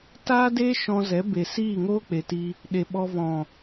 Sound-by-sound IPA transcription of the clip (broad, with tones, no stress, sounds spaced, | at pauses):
t aː˦ d eː˦ ʃ ɔ̃˧ z ɛ˨˦ b e˨ s iː˦˨ ŋ oː˦ k͡p e˨ t i˧ | ɗ e˨ ɓ ɔ˧ v ɔ̃˨